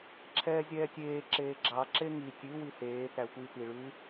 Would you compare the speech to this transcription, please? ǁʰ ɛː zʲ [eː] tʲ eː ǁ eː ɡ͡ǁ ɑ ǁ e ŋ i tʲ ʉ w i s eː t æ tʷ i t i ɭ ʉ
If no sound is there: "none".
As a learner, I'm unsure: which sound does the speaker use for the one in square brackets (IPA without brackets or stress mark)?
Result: ɛː